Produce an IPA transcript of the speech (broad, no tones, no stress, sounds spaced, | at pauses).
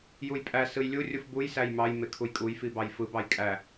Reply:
j u j pʼ æ s ɯ j lʲ u rʲ u f b u j s æ j m ɑ j m e kʰ u j kʼ u j f i b ɑ j f ɯ b ɑ j kʼ æ